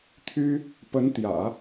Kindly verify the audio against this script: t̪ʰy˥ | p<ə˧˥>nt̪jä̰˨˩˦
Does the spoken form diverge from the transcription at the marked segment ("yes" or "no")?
no